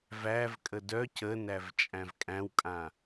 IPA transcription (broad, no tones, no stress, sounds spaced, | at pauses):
v æ v kʼ ə d œ c ə n æ v t͡ʃʼ æ̃ v kʼ æ̃ w kʼ ã